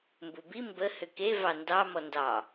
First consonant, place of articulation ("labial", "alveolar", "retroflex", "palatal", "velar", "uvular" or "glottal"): labial